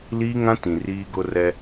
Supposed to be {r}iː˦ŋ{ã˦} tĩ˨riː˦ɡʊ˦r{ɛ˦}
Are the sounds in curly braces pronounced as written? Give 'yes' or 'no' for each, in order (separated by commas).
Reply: no, yes, yes